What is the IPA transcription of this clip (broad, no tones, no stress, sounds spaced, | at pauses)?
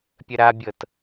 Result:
pʲ ə ɾ a bʲ ɤ t